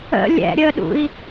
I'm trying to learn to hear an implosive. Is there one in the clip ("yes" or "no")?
yes